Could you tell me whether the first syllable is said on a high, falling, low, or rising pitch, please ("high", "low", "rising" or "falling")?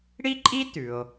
high